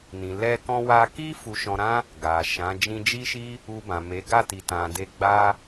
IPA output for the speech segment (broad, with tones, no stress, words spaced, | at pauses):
nĩ˨ lɛ˧kɔ̃˧ wa˧ki˦ fu˧ʃɔ̃˧ɾã˦ | ɡa˨ʃã˨˦ d͡ʒĩ˧d͡ʒi˦ʃi˦ | u˧bã˨me˨˦ ɡa˦˨ti˨tã˨de˧ ɡ͡ba˦